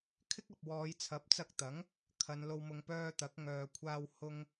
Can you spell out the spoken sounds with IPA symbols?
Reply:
kʰ ɪ˥ k̚ ɐ˨ p̚ w ɔː˨˧ j t͡sʰ ɐ˨˥ p̚ t͡s ɐ˧ k̚ t̪ ɐ˨˥ ŋ | kʰ ɐ˨˧ n l o˧ w m ʊ˧ ŋ p œː˧ t̪ ɐ˨˥ k̚ ŋ œː˨ kʷʰ aː˧ w h ʊ˧ ŋ

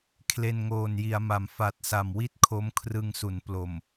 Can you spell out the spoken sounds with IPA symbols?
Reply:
kʰ l e˧ n ŋ oː˨˩ n j i˩˦ a̯ m a˩˦ m f a˨˩ t̚ s a˨˩ m w i˥˩ t̚ kʰ o˦˥ m kʰ r ɯ˧ ŋ s u˩˦ n p l o˨˩ m

